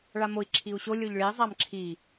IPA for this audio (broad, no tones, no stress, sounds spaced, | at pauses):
ɭ a m o i̯ ǁʰ i u̯ ɕ o lʲ o ʎ ɭ i zˤ a m ǁʰ i